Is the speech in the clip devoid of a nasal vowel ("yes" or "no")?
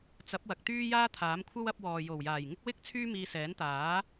yes